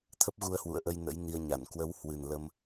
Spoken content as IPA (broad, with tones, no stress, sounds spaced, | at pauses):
t̪ʰ ə˦˥ p̚ ɣ u˧ ə̯ h w ṵ˧˨ ə̯ ʔ ə˧ j n ə̰˧˥ j n i˧ ə̯ ɲ a˧˩ n k w ə˨˦ w h w ɨ˨˩ n l ə˧ m